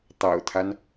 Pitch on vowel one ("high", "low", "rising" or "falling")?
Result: low